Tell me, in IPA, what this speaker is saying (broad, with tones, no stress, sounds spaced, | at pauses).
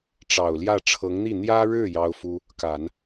ʈ͡ʂ ɑ˨˩ ʊ̯ l j ä˥˩ ʈ͡ʂʰ ɤ˧˥ ŋ n̪ i˥˩ n̪ j ä˥ ɻ ɻ̩˥˩ j ɑ˥ ʊ̯ f u˥ | k a˨˩˦ n